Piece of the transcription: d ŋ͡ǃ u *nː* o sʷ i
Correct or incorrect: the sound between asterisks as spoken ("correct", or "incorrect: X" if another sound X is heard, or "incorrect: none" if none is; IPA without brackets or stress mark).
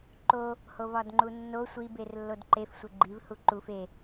correct